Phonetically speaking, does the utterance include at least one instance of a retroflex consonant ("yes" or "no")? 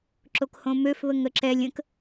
no